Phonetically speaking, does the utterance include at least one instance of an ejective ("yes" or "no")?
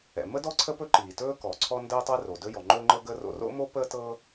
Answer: no